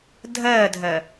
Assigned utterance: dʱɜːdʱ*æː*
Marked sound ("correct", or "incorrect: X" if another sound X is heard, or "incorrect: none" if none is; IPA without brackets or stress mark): incorrect: ɜː